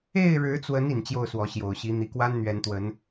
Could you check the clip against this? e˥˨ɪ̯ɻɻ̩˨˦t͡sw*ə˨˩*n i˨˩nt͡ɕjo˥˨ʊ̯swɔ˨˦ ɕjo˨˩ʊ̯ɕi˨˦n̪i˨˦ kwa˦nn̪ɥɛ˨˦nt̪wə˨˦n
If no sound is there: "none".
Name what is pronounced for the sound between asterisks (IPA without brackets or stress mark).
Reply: ə˨˦